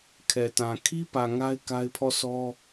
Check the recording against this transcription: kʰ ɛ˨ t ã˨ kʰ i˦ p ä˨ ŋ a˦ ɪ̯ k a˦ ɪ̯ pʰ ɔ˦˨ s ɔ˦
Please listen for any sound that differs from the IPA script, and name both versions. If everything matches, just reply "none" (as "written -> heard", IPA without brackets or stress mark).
none